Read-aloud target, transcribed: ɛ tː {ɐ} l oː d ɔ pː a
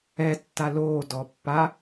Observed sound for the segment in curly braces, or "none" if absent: a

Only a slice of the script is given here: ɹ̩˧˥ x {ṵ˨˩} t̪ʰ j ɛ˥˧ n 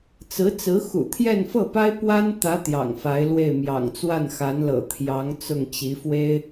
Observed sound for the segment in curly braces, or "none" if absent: ṵ˨˩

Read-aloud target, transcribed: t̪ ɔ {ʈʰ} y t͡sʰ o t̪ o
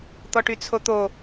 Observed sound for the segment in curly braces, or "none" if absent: ʈ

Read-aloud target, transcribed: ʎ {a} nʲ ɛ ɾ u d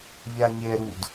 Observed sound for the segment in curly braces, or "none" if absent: a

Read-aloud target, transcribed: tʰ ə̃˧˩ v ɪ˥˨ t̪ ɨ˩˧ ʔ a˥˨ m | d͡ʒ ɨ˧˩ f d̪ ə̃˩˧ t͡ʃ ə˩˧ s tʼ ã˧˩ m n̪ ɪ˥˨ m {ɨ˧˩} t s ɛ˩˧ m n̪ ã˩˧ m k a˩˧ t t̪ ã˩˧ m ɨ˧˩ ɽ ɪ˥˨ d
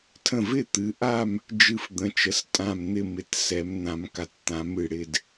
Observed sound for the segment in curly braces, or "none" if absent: ɪ˧˩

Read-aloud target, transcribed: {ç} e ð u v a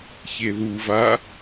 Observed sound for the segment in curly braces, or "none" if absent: ç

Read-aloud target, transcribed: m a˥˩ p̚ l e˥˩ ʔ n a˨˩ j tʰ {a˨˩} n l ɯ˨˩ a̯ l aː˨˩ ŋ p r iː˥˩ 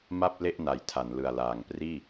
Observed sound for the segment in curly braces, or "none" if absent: a˩˦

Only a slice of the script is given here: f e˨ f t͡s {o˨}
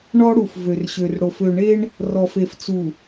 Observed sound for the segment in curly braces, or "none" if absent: u˨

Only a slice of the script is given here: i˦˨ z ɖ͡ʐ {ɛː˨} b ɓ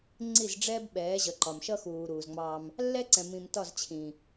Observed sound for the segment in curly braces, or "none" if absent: ɛː˦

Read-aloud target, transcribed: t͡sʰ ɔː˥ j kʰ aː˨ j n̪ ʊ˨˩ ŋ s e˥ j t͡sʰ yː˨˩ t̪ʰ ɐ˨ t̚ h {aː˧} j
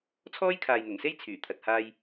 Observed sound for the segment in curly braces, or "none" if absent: aː˧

